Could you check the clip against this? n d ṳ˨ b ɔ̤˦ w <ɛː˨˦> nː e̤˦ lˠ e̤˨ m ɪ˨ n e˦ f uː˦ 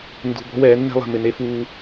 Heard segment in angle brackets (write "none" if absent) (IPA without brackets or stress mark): ɛː˨˦